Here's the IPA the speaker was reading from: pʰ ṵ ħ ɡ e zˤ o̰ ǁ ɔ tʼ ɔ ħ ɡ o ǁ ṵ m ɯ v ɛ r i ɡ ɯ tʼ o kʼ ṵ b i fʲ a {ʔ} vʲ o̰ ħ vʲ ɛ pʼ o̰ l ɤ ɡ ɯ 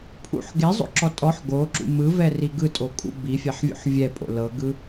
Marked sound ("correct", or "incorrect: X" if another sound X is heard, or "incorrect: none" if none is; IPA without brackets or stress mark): incorrect: ħ